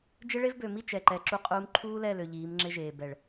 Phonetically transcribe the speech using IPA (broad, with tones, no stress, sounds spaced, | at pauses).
d͡ʒ ɪ˦ ɭ e˦ v b ø˨ m i˦ t͡ʃ ɛ˨ ǃ ɛ˨ ǁ u˦ qʼ uː˦ m ǃʰ uː˦ l ɛ˦˨ l ø˨ ʎ iː˨˦ m ŋ͡ǁ ɪ˦ ʒ eː˨ b ɛ˨ ɭ